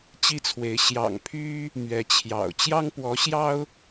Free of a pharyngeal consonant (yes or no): yes